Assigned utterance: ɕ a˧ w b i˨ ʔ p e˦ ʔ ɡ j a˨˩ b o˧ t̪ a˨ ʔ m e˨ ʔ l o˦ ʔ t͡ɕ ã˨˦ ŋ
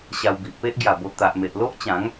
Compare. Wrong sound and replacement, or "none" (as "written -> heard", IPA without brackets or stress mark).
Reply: none